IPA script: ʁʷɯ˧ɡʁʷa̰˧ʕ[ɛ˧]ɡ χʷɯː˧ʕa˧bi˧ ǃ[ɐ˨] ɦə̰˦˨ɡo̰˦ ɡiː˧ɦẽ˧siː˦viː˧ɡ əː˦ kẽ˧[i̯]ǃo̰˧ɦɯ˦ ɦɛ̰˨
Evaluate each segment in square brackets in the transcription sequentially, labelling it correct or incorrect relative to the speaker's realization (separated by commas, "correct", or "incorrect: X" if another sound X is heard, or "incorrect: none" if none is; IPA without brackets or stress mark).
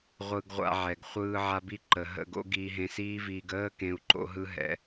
incorrect: ɛ˨, incorrect: ə˨, incorrect: u̯